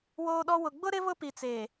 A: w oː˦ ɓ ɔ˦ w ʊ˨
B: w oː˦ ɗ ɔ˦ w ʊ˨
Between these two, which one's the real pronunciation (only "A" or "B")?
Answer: B